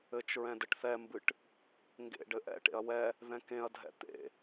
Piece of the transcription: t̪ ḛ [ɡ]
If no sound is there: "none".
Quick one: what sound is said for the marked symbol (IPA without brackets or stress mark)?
none